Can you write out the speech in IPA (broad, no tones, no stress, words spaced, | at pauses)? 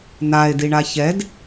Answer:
nae̯diɳa çɛd